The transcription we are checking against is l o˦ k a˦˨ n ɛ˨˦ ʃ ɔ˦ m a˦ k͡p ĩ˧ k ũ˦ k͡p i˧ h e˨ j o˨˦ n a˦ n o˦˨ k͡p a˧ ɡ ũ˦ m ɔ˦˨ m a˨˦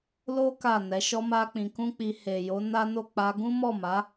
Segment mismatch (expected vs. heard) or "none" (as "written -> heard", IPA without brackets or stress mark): none